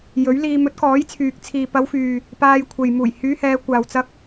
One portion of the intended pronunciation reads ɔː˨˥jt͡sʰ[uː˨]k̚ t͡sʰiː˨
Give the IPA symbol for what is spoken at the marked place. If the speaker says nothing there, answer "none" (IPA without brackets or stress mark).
yː˨